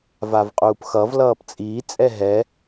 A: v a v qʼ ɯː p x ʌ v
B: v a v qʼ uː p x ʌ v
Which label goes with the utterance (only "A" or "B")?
B